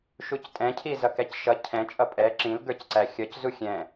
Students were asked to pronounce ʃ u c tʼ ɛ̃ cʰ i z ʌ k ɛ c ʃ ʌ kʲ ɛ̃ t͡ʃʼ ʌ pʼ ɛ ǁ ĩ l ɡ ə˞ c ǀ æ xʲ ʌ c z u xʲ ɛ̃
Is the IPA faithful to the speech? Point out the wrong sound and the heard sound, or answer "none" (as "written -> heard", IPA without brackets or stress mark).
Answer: kʲ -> cʰ